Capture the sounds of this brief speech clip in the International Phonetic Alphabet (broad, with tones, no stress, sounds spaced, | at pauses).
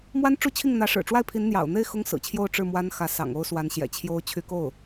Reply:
m w a˥ n ʈ͡ʂ u˥˧ t͡ɕʰ i˥˩ ŋ n̪ ä˧˥ ʂ ɻ̩˨˩ ʈ͡ʂ w a˥˩ ɪ̯ pʰ i˧˥ n n̪ j ɑ̰˨˩ ʊ̯ n̪ e˥˩ ɪ̯ x ʊ˥ ŋ s ɹ̩˨˩ t͡ɕʰ j o˥˧ ʊ̯ ʈ͡ʂ ɻ̩˥˩ m w a˥ n x ä˧˥ s ɑ̰˨˩ ŋ o˥ ʊ̯ s w a˧˥ n ɕ j ɛ̰˨˩ t͡ɕʰ j o˥ ʊ̯ t͡ɕʰ y˧˥ k o˥˩ ʊ̯